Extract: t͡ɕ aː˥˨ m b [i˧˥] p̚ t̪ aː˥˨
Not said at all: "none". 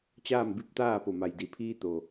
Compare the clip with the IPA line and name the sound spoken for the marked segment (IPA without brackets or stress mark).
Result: i˧˥